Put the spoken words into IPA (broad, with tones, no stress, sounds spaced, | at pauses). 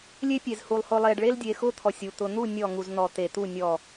lʲ e˦ pʲ e˨ z h u˨ lˠ h ʊ˨ lˠ e˨ ɖ ɭ e˦ l dʲ e˨ x ʊ˦ t̪ʰ ɔ˨ sʲ u˨ t̪ ʊ˨ n̪ u˦˨ nʲ ɔ˦˨ ŋ u˨ z n̪ ɔ˨ t̪ e˨ t̪ u˦˨ nʲ ɔ˦˨